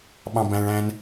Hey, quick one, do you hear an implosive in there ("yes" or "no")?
yes